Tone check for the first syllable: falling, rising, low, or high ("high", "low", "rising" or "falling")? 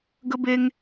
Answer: high